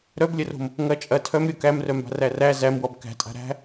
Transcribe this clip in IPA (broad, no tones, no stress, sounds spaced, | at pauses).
ɾ œ b lʲ ɐ r o̤ m | ŋ ɐ t͡ʃʼ ɐ tʰ œ m ɾʲ o k æ m r œ m b a̤ r æ r æ z æ m w ɔ b k æ̤ tʼ a̤ ɾ æ̤